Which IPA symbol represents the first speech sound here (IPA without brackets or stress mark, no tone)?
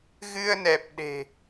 ɣ